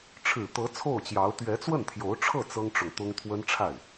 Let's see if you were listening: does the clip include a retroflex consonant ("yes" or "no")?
yes